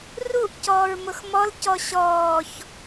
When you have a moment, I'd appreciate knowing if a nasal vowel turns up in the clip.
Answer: no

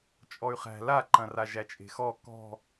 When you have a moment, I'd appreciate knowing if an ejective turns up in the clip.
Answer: yes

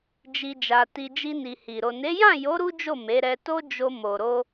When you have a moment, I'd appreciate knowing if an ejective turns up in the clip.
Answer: no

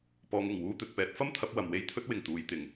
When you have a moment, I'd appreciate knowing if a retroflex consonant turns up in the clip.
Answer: no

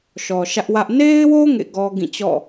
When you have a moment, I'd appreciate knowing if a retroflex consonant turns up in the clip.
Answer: no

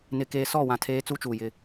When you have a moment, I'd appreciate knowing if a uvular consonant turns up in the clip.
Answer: no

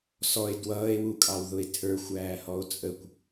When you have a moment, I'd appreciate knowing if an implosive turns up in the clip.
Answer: no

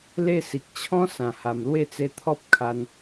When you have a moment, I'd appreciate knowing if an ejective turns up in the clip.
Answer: no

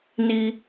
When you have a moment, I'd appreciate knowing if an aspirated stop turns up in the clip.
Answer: no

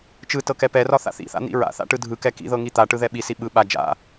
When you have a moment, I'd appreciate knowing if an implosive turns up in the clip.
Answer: yes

